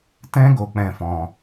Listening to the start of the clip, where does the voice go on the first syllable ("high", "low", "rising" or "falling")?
high